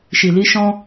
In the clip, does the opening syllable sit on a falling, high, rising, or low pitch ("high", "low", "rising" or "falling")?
low